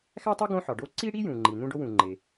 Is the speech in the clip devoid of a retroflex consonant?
no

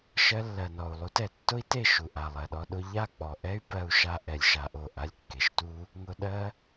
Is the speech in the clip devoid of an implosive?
no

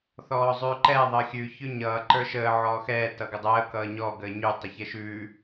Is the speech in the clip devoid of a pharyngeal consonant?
no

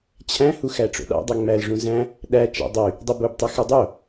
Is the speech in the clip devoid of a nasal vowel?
no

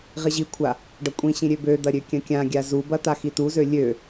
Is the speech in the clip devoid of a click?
yes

